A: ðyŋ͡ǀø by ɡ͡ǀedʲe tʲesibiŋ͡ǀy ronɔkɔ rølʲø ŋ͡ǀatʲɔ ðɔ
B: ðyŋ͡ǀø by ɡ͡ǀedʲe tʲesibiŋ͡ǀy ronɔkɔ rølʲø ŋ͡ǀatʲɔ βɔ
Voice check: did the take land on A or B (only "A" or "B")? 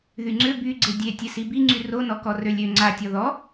A